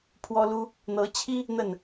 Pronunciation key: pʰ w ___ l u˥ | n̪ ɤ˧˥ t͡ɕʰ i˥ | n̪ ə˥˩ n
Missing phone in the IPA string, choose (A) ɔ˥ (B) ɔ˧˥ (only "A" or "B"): A